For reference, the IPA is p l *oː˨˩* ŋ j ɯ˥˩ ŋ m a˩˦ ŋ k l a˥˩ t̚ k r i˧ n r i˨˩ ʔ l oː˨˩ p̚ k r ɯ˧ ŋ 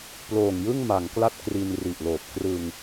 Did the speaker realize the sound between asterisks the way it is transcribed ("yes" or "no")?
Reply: yes